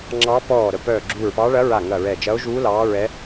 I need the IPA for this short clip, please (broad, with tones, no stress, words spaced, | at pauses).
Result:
ŋ͡ǁɑ˧˥ pɔː˧˩ ɾə˧˩pœː˧˩ɡ͡ǁuː˧˩ɹpɑː˧˥ ɭɐ˧˥ɹa˧˩ ŋɐ˧˩ɹɛ˧˩ d͡ʒɐ˧˥o̯ʒuː˧˥ lɑː˧˥ɹɛ˧˥